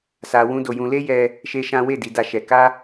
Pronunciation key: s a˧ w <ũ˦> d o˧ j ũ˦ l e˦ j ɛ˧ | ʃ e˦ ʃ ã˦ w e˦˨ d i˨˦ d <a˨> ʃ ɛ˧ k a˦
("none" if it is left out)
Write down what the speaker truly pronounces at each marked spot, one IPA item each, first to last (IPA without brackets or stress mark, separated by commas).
ũ˦, a˧